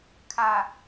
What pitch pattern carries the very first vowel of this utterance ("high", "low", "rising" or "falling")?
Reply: low